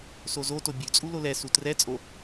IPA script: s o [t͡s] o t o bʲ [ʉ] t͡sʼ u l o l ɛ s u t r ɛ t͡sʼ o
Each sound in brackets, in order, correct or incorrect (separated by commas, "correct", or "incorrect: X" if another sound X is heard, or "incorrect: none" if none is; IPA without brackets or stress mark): incorrect: z, correct